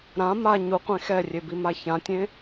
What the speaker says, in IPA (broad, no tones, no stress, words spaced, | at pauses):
ɾã ma ɲuqʷẽ xɛrʲebima çãtʲẽ